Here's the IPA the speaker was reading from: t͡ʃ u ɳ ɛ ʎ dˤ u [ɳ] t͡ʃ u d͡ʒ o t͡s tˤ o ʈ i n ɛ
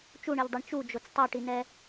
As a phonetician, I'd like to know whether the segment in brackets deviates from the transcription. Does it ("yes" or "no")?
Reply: no